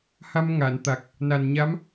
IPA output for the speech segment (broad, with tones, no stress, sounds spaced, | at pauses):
h a˧ m ŋ a˨˩˨ n t̪ a˨˩ k̚ | n a˨˩ n ɲ a˧˥ m